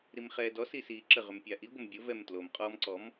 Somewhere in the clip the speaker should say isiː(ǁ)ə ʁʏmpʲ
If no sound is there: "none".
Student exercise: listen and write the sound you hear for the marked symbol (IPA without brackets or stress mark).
ǁ